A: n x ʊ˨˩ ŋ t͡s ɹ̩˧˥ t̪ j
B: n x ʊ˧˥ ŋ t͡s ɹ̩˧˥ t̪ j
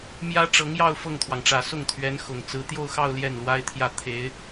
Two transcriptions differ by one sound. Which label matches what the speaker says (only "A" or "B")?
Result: A